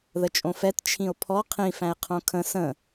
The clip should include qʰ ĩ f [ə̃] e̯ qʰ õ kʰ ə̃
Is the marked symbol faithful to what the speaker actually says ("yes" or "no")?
no